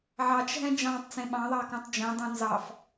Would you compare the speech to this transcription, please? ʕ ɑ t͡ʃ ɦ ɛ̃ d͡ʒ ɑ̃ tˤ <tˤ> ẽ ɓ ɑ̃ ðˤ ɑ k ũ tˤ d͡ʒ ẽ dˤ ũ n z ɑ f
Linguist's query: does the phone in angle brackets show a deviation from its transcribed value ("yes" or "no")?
yes